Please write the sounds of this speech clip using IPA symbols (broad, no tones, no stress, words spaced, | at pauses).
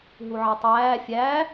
ɦuʕetˤæː fʲæ